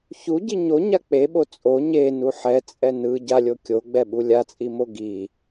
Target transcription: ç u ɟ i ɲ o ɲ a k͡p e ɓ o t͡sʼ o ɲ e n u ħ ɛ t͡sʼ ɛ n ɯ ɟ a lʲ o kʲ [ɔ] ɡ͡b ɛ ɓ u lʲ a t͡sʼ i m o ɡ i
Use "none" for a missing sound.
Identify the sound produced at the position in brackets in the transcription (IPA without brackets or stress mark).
o